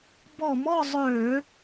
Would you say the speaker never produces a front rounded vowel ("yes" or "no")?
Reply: no